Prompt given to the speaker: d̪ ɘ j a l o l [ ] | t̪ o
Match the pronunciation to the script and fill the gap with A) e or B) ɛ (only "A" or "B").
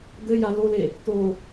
A